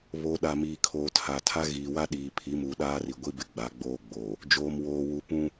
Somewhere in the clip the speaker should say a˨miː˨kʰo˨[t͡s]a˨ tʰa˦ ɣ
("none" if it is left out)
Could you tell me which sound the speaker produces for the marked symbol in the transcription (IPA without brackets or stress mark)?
tʰ